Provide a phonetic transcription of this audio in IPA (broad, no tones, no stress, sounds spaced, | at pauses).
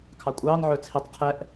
kʰ ɑ kʷʼ ɑː n ʕ ɵ t͡sʰ i tˤ qʰ ɛ ʔ